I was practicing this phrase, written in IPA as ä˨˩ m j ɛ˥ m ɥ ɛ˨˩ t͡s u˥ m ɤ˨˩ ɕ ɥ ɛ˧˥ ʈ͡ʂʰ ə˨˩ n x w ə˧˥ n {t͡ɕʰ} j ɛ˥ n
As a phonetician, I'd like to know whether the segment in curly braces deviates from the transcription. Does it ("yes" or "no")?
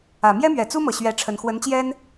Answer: yes